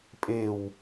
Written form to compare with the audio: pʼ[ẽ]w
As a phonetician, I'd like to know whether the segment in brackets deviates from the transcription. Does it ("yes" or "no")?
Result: yes